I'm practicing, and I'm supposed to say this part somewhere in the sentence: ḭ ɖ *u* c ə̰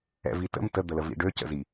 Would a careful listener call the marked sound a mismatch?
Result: yes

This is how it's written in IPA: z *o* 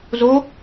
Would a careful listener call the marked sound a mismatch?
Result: no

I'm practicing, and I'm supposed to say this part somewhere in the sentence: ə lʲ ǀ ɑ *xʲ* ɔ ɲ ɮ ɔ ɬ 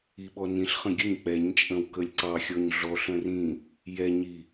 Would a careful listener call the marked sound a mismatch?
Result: no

